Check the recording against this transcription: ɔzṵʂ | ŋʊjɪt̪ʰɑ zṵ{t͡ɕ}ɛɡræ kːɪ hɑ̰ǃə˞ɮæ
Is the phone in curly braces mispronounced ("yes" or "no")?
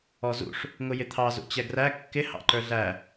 no